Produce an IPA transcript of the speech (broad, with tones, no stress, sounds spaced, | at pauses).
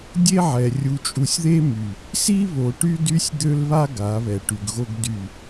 dʲ e˦ ʕ ɛ˨ rʲ u˨ t͡ʃʼ u˨ sʲ ð e˦ m y˨ | s i˦ β o˨ ʈ y˦ d y˦ sʲ d̪ ø˦ l β a˦ ɡ a˨˦ β ɛ˨ ʈ y˨ ɡ ɣ o˦ ɡ d y˦˨